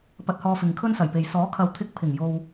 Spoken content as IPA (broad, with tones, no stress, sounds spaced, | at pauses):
p ɐ˧ t̚ h ɔː˧ f ɪ˨ ŋ kʰ ɵ˥ n s ɐ˨˩ j p e˨ j s ɔː˨˥ kʰ ɐ˨ w t̪ʰ ɪ˧ k̚ pʰ ɪ˨˩ ŋ j o˨ w